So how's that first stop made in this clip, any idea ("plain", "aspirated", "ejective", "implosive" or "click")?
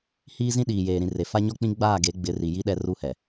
implosive